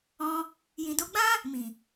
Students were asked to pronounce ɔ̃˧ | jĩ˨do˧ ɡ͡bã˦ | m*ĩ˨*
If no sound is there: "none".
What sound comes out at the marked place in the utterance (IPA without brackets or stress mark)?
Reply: ĩ˨